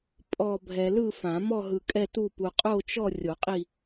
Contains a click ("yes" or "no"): no